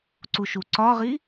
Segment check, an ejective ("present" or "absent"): absent